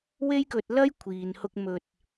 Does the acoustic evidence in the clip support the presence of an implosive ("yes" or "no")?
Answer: no